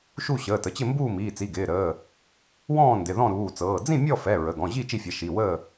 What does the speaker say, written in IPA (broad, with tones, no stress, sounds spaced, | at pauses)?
ʃ u˥˨ ɕ əː˩˧˩ t ə˩˧˩ t͡ɕ ɪ˥˨ m b uː˥˨ m iː˩˧˩ t͡s i˩˧˩ ɡ ɪː˩˧˩ ɾ əː˩˧˩ | w ɔ̃ː˥˨ n d ɪ˩˧˩ ð ɔ̃˥˨ ɾ uː˩˧˩ t͡s ɤː˩˧˩ d͡z ĩ˥˨ mʲ ɔ˥˨ f ɛ˩˧˩ ɹ ə˩˧˩ ɡ ɔ̃˩˧˩ ʑ i˥˨ t͡ʃ i˥˨ fʲ ɛ˩˧˩ ʃ i˩˧˩ w əː˥˨